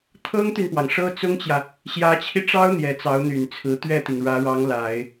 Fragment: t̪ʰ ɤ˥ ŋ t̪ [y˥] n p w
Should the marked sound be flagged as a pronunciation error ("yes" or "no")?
yes